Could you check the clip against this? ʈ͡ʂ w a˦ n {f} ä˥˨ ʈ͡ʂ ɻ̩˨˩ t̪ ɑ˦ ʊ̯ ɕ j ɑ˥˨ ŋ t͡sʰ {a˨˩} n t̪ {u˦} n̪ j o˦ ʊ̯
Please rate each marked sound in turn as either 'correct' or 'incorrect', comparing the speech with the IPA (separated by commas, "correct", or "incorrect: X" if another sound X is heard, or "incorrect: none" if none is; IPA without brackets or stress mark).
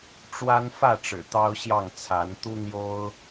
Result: correct, incorrect: a˨˦, correct